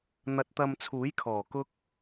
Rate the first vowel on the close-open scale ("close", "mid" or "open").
open